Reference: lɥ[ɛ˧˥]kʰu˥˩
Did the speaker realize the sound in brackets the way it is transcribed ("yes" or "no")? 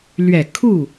no